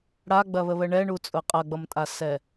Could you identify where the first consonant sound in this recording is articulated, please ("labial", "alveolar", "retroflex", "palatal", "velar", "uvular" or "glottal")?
retroflex